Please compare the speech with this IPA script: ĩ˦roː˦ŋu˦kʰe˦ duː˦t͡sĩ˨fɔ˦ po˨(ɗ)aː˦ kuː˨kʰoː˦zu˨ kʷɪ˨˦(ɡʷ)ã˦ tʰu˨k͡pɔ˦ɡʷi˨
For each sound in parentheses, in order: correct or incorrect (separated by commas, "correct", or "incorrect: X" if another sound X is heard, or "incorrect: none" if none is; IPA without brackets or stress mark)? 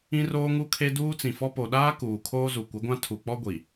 correct, correct